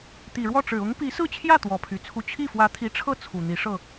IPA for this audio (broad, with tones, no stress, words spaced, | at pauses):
t̪i˨˩ɻwɔ˥˩ʈ͡ʂɻ̩˨˩ ʊ˧˥ŋpi˧˥sɹ̩˥˧t͡ɕʰjä˥˩ t̪wɔ˧˥pʰy˨˩t͡sʰu˥˧ t͡ɕʰi˥˩fwä˧˥t̪ʰi˧˥ʈ͡ʂʰɤ˥˩ t͡sʰu˨˩n̪i˧˥ ʂɤ˥˩